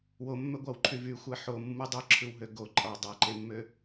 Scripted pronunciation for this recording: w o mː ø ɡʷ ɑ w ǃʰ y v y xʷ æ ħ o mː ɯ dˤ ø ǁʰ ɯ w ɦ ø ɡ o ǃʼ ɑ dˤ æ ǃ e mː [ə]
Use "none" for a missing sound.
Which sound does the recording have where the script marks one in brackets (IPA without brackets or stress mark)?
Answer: ø